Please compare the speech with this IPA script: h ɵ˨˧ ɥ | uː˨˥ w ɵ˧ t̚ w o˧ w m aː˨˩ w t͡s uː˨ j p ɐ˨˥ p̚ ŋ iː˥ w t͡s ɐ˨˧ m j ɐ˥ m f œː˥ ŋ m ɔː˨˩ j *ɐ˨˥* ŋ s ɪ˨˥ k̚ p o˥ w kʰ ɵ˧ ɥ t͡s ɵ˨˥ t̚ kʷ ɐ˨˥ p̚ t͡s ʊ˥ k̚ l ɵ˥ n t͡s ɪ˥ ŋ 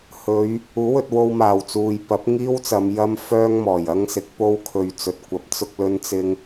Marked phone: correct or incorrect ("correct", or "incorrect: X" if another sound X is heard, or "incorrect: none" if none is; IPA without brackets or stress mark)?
incorrect: ɐ˥